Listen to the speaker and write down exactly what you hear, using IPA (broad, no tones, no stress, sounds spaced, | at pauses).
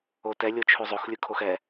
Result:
o t ɛ lʲ o t͡ʃʰ ʉ zˤ o x lʲ ɯ kʰ o x ɛ